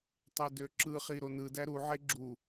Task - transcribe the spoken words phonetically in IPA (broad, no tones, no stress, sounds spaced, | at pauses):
tˤ e d ø ǁ ɯ χ i ɾ o n ɯ d æ ɾ u ʕ e ɡ͡ǁ u